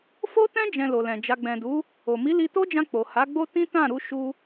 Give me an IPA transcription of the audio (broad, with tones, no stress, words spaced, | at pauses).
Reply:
fo˦tɛ̃˦ d͡ʒɛ̃˧lo˨lɛ̃˨d͡ʒa˧ ɡ͡bɛ̃˨du˨˦ | o˨ mi˨˦li˧to˦d͡ʒã˧ k͡po˨ ha˨˦ɡ͡bo˦ tĩ˦tã˦˨ɾu˧ ʃu˧